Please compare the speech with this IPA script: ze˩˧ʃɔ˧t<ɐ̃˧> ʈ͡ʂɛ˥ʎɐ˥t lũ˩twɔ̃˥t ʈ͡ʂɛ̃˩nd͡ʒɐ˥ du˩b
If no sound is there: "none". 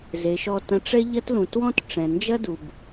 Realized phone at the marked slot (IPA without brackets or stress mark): ɐ̃˧